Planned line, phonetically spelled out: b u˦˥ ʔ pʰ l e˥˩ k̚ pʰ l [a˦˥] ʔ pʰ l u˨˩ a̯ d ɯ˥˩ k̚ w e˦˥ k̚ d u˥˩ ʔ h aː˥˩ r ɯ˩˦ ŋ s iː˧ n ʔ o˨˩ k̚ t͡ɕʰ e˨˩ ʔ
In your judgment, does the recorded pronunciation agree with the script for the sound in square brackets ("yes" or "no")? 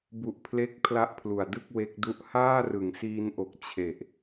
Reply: yes